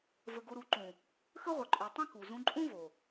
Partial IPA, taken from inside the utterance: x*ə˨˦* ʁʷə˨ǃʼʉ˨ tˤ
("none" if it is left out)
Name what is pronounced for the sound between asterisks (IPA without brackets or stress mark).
ə˦